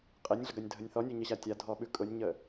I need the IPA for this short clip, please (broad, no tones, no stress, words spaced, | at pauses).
qʼenʲɮəɡanʲdʱənʲ θɔnʲʉɲəɕa tʲadʱɔɓʉ kʼʊnʲɲə